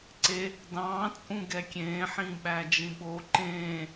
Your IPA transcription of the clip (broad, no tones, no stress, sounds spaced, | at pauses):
ǀ e | d ɑ̃ː t͡sʼ ũ ɡ ɛ kʲ ẽː ħ ĩ ɓ æ d͡ʒ ĩ ɓ o ǃ ẽː